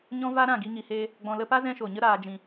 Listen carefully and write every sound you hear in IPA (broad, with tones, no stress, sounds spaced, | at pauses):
ɲ ɔ̃˦ v a˦ ɾ ã˦˨ ɡ i˧ ŋ i˨ h eː˧ | ɡ͡b ɔ̃˨ l ə˧ p a˦ z ɛ̃˦ ʃ o˨ ɲ ə˦ ɾ aː˨ d͡ʒ ĩ˨